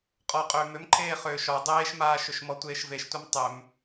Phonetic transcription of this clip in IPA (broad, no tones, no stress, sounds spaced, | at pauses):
qʼ ɔ qʼ ʏː m ʏ m ǃʰ eː χ ʏː ʃ ɔ dˤ eː ʃ m aː ʃ ʏ ʃ m ɔ tʷ eː ʃ v e ʃ tʷ ɛ m tˤ ʏ m